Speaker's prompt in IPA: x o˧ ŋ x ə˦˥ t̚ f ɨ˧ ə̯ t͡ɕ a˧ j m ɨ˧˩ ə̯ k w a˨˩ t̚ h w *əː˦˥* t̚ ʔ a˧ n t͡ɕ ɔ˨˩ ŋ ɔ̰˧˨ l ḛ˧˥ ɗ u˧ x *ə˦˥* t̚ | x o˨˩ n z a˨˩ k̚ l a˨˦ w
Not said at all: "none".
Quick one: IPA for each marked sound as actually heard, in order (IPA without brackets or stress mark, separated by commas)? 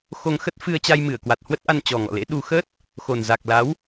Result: ə˦˥, ə˦˥